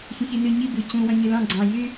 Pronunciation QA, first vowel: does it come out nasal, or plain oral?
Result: nasal